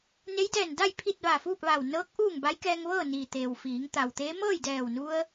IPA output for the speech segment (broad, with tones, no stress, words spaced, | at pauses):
ne˧˥jdɛː˧˩nda˥˨j pʰi˥˨t̚ ʋa˧˩fuː˥˨p̚ʋa˧˩w nɤː˧˥k̚ ʔuː˥˨ŋ ba˧˥jkɛː˧ŋ ʋɤː˥˨niː˩ t̪eː˩w fiː˩˧ŋ t̪a˩wt̪eː˧˥ mɤː˥˨jdɛː˧˩wnu˧ə̯